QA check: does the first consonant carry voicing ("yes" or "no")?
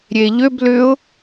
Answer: yes